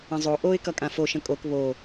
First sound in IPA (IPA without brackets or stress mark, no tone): ə̃